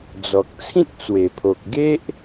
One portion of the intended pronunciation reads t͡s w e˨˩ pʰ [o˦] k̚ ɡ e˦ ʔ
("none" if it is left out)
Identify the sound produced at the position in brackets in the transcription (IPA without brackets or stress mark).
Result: o˨